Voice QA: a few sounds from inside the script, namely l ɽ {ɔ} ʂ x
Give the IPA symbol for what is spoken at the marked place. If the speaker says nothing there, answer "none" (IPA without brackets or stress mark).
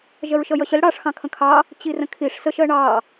ɑ